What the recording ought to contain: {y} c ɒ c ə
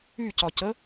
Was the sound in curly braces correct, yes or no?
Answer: yes